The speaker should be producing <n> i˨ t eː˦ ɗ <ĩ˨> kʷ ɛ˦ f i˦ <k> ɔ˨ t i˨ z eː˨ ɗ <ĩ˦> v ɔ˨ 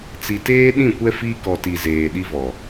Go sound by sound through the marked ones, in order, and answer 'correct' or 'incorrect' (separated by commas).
incorrect, incorrect, correct, incorrect